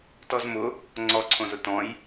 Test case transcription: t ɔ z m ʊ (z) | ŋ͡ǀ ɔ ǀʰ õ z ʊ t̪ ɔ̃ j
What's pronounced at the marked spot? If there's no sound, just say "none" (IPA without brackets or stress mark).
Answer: none